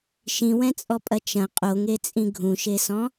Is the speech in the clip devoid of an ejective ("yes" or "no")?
no